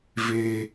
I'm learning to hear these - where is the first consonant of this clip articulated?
lips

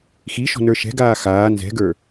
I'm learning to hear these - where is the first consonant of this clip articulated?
velum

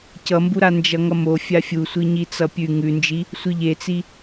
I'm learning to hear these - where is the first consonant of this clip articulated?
palate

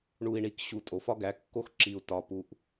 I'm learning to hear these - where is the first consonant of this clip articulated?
retroflex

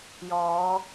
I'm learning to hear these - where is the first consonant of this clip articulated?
palate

